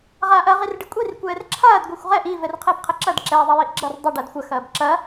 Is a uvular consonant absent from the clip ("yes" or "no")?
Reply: no